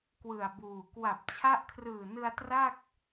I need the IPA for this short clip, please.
k w ɯ˨˩ a̯ b uː˨˩ k w a˨˩ p̚ t͡ɕʰ a˦˥ ʔ kʰ r ɯː˨˩ n ɯ˧ a̯ t r a˥˩ k̚

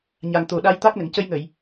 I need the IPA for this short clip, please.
ɲ a˨˩ ŋ t̪ o˨˩ ɗ a˧ j t̪ a˦˥ k̚ n ə˨˩˨ ŋ c ə˧ j ŋ ə˨˩˨ j

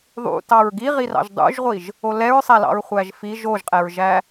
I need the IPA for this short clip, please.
ðˤ ṵ t ɑ ɹ ɡ i ʁ i r ɑ̰ ʒ dˤ ṵ ʒ ʁʷ i ʒ | o l ɛ ɹ sˤ æ l ɑ̰ ɹ χʷ æ ʒ f i ʒ o ʒ qʼ ɛ ɹ ʒ æ

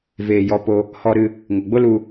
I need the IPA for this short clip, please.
v eː˨ j ɔ˧ p o˧ | h ɔ˧ ɾ ɨ˧ | ŋ o˨ ɡ͡b o˦ l u˧

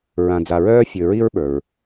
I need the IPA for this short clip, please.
ɹ ã˨ d͡z a˨ ɹ œː˦ fʲ ɵ˨ ɹ i˦ ɹ ɓ ə˞˩ ɹ

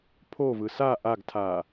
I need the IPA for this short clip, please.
pʰ o v ɯ s a ʔ a ɡ tʰ a

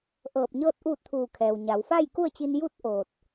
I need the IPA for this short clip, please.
ʔ ɤː˧˩ p̚ ɲ ɤː˥˨ t̚ ʔ uː˥˨ t̚ t̪ʰ uː˧˩ kʰ ɛː˩ w ɲ a˩˧ w f a˥˨ j k u˥˨ ə̯ t͡ɕ i˧ n j u˥˨ t̚ ʔ oː˧˩ t̚

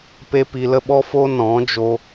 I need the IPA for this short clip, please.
p e˦ p i˧ l ə˦ ɓ ɔ˦ f o˦ n ɔ̃˨˦ d͡ʒ o˧

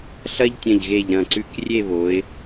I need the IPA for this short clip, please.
ɬ ɐ˥ ʎ tʲ ɐ̃˧˩ ʎ ɣ e˧˩ ʎ ɾ ɐ̃˧˩ ǀ ʉ˧˩ k rʲ e˥˧ β o˩˧ ɪ̯

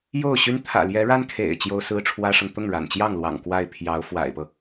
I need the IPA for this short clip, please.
j o˥˩ ʊ̯ ɕ y˥ n t̪ʰ ä̰˨˩ l j ɛ˧˥ ɻ a˥ n kʰ ḛ˨˩ ɪ̯ t͡ɕ j o˥ ʊ̯ s ɹ̩˥ ʈ͡ʂʰ w ä˥ ʂ ɤ˨ ŋ t̪ ʊ˥˩ ŋ ɻ a̰˨˩ n t͡ɕ j ɑ˥˩ ŋ l w ɑ̰˨˩ ŋ k w a˥˩ ɪ̯ pʰ j ɑ˧˥ ʊ̯ f w a̰˨˩ ɪ̯ p ɤ˦

